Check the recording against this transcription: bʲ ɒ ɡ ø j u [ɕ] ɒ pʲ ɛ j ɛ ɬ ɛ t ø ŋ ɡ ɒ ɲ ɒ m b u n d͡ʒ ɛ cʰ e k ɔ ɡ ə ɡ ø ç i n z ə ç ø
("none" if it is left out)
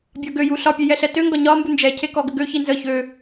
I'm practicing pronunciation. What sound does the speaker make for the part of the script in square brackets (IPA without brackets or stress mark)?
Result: ɬ